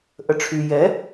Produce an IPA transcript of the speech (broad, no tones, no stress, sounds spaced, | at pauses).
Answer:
ʔ ə ʈ͡ʂʰ y j ɛ